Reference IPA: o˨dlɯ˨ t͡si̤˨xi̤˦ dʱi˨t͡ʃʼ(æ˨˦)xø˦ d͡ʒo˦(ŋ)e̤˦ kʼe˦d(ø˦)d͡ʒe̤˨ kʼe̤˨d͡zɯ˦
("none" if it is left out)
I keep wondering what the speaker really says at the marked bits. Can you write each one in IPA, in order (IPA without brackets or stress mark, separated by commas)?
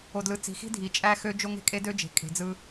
æ˦, ŋ, ø˦